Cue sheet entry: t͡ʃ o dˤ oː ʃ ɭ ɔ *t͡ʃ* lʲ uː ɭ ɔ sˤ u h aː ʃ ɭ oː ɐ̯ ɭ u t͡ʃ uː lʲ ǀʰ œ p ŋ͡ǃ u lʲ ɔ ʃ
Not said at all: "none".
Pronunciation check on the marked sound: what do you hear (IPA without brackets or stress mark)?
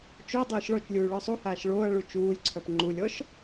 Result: t͡ʃ